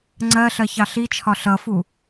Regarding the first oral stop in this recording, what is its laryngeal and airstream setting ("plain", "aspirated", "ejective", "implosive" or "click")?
click